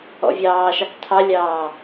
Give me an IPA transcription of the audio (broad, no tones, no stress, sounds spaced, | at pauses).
ɔ̰ vʲ ɑː ʃ ɑ k tʰ ɑ lʲ ɑː